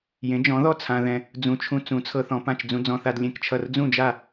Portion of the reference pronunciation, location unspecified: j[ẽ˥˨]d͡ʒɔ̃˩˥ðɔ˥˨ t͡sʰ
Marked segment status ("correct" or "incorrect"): incorrect